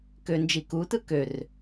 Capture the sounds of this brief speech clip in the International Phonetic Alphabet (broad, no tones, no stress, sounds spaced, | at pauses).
k ø n d͡ʒ i k u t ɯ k ø r